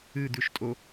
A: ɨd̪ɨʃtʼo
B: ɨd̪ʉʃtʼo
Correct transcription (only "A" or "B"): B